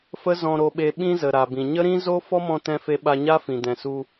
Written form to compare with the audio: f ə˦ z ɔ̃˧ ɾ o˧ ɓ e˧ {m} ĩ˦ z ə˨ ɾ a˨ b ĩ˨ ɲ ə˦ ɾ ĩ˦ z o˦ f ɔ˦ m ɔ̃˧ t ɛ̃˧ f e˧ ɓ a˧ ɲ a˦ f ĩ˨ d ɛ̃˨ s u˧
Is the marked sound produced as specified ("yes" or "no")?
no